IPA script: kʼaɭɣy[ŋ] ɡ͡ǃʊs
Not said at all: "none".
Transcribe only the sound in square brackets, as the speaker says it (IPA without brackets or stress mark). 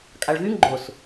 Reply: ŋ